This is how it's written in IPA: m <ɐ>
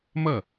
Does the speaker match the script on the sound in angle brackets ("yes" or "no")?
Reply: yes